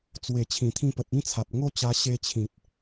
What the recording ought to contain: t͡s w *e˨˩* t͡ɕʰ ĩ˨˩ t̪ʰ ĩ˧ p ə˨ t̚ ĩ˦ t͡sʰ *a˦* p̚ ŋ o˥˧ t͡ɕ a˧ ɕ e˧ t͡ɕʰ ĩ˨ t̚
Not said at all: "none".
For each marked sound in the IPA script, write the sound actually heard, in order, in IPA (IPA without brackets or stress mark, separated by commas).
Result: e˨˩, a˨